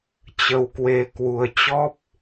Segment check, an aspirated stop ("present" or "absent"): absent